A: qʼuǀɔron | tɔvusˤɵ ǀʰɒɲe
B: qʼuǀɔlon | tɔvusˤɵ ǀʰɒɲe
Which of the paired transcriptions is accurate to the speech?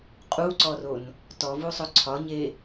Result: A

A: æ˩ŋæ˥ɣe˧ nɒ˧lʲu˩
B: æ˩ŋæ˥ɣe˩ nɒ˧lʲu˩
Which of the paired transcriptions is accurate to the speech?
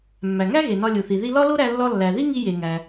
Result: B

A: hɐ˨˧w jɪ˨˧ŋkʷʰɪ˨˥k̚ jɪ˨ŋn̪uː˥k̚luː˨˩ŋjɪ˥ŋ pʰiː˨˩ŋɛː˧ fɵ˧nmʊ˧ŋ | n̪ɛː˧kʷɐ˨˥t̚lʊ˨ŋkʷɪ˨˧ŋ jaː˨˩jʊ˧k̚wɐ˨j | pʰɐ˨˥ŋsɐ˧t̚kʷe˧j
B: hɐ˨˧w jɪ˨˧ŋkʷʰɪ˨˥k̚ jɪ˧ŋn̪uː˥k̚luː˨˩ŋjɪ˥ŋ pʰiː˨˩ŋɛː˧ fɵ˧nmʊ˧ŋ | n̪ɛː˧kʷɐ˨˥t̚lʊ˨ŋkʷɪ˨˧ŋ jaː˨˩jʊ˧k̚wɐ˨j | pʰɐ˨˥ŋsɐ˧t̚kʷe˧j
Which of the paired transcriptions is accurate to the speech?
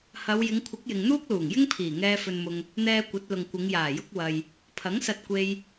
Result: A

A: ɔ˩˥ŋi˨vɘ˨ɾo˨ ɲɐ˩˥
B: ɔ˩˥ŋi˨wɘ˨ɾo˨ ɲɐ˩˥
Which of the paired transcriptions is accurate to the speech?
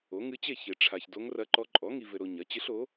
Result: A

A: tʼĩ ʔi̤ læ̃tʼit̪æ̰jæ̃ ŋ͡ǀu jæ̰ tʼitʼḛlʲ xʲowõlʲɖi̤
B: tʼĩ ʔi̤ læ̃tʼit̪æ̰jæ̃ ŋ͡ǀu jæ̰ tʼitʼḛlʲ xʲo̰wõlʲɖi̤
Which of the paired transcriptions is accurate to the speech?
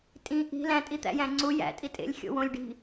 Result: B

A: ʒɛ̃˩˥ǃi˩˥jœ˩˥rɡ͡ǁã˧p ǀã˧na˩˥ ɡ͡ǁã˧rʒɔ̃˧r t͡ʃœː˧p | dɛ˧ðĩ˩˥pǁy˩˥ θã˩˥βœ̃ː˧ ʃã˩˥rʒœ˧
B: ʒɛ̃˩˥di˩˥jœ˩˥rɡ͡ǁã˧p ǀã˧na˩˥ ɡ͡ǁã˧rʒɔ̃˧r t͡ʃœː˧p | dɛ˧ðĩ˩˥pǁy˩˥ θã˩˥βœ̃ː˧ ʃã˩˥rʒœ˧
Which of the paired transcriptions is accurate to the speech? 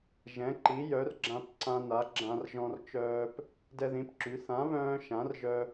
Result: A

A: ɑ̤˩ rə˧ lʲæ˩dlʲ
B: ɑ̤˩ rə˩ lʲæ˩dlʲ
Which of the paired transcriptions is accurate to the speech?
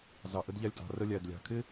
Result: A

